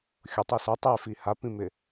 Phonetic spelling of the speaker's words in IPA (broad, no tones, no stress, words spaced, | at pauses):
xʲʊtˤi sʊ tˤefi hapĩmɪ